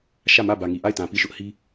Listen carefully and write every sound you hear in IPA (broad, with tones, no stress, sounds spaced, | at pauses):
ʃ ä˦˨ m ä˦˨ b ä˨ ŋ i˨ ʔ a˦˨ ɪ̯ t ã˨ p i˦˨ ʃ ʊ˦ ʔ h i˦